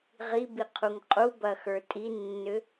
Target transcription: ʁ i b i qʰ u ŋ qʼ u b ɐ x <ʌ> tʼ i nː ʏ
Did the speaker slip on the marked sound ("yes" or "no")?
yes